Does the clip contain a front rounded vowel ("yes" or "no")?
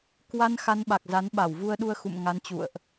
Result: no